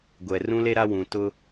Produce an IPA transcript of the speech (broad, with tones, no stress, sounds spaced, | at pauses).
ɡʷ ɛ˨ r ũ˦ l e˦ ɾ a˦ w ũ˨ t ʊ˦